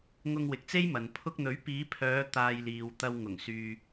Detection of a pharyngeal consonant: absent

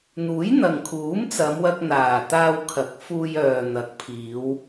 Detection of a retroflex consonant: absent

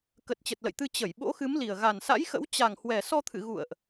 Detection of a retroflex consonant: absent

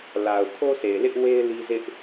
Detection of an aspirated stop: present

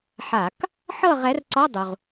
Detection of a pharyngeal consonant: present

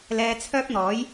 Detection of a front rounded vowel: present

